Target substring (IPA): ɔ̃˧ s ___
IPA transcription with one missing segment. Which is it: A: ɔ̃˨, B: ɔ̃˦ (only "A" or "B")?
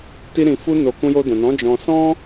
B